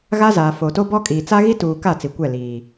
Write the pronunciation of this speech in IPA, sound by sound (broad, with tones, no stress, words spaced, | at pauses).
ɣa˦zaː˨ foː˨to˦bɔ˦kʼiː˨ t͡sa˦ɣi˦tuː˨ ka˦˨ t͡si˨kʷɛ˦˨ liː˨